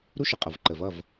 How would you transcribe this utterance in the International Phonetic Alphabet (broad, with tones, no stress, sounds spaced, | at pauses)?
ɾ u˦ ʃ ə˨ qʼ ʌ˨ v ǃ ə˨ v ʌ˦˨ v